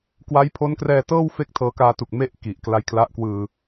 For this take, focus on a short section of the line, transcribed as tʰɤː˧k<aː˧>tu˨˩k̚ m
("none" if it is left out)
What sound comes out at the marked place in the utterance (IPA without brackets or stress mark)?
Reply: aː˧